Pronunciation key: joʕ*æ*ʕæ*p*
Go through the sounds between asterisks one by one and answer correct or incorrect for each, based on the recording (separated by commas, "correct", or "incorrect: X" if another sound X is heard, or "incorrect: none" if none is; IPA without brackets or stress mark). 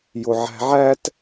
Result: incorrect: æ̤, incorrect: t